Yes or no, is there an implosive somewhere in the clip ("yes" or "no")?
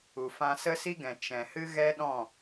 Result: yes